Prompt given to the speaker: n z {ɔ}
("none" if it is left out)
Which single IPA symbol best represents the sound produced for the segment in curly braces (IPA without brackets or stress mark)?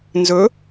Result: ɵ